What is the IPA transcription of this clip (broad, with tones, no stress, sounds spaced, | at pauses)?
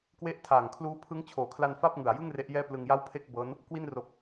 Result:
k w e˦˥ ʔ tʰ aː˨˩ ŋ kʰ l uː˦˥ pʰ ɯ˦˥ ŋ t͡ɕʰ oː˨˩ kʰ l a˧ n f a˥˩ p̚ ŋ ɯ˨˩ a̯ j ɯ˥˩ ŋ r e˦˥ ʔ j ɛː˥˩ p l ɯ˧ ŋ j a˥˩ w pʰ e˥˩ k̚ b ɤː˦˥ n | k w i˧ n r o˨˩ k̚